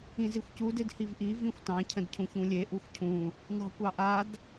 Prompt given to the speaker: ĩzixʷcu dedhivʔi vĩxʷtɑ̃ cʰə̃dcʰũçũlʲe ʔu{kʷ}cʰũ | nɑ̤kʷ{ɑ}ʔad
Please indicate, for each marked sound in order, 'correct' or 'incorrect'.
incorrect: xʷ, correct

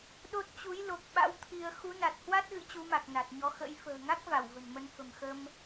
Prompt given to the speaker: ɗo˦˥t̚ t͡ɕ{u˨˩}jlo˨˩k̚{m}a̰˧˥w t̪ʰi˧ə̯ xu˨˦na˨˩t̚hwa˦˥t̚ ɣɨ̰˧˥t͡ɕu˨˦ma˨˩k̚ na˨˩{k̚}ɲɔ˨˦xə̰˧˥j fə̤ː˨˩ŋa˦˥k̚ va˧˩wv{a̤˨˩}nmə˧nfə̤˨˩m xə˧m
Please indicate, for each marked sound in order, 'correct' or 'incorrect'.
incorrect: u˨˦, incorrect: ɓ, incorrect: t̚, incorrect: ə̤˨˩

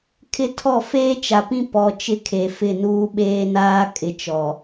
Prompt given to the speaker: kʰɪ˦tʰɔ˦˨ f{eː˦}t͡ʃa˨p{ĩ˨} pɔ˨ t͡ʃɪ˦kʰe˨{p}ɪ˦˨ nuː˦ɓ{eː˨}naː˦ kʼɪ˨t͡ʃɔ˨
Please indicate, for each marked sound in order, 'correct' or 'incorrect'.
correct, incorrect: ĩ˦, incorrect: f, incorrect: eː˦

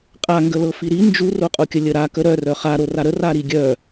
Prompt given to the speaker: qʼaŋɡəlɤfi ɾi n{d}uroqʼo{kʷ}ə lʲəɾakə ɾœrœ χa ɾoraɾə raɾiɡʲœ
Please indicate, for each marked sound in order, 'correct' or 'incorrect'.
incorrect: d͡ʒ, incorrect: kʲ

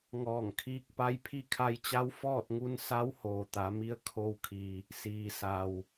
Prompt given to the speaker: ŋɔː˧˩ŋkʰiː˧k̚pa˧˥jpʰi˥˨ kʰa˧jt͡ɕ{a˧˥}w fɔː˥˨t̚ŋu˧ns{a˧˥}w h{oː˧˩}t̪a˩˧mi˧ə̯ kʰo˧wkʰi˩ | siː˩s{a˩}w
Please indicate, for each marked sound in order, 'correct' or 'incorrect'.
correct, correct, incorrect: oː˩, correct

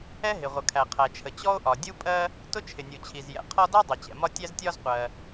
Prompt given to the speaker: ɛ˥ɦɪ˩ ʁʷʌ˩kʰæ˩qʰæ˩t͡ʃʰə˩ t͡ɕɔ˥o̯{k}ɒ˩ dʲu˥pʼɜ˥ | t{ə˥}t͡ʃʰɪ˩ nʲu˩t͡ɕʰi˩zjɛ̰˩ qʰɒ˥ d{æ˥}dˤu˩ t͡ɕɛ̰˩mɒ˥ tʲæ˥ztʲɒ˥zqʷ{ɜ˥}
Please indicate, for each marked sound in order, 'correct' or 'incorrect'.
incorrect: ʔ, incorrect: ʊ˥, correct, incorrect: ɜ˩

